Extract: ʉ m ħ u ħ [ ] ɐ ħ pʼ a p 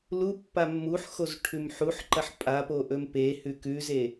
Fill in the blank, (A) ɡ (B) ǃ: B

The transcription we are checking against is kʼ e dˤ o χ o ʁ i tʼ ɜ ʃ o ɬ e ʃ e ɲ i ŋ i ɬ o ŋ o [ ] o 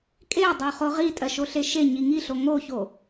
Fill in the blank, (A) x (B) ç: B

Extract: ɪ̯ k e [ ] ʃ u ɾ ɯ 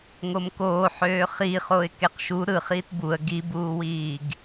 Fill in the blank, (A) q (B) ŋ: A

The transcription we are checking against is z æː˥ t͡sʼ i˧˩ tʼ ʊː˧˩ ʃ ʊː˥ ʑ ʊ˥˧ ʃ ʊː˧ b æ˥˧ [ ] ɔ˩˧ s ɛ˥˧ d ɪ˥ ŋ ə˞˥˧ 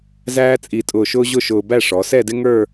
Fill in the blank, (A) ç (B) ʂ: B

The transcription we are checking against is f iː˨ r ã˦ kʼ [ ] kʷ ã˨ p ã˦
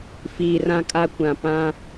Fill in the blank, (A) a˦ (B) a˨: A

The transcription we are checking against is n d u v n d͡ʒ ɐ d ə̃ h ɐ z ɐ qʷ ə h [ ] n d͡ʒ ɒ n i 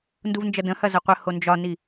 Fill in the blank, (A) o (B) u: A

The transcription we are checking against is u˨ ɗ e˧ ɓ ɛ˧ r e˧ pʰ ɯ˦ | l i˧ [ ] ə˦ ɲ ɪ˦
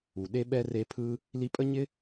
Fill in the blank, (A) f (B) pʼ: B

